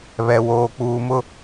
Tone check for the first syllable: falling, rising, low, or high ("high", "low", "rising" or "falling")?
low